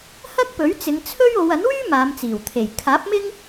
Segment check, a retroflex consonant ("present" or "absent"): absent